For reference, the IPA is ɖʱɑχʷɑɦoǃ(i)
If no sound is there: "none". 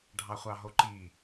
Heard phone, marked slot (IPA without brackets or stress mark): i